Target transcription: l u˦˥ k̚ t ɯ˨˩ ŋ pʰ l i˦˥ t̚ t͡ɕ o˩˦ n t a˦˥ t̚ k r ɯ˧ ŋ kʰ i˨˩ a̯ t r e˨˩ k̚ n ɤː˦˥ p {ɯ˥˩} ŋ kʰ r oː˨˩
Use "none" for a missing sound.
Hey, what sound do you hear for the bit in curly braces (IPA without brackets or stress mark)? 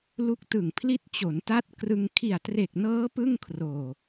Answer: ɯ˥˩